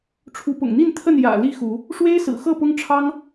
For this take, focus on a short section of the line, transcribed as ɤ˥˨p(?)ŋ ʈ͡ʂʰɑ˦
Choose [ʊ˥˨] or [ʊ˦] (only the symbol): ʊ˦